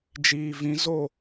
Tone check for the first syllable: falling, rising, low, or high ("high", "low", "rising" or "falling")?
low